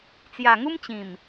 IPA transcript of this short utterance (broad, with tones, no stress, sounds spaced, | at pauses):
t͡s j a˨˩ ŋ u˦ m t͡ɕ ĩ˨˩ m